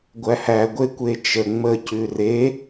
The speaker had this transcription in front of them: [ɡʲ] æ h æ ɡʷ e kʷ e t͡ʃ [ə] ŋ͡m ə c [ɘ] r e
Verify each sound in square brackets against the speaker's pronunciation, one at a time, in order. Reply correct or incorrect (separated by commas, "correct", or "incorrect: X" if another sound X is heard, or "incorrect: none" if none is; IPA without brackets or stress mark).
incorrect: ɡʷ, correct, incorrect: ʉ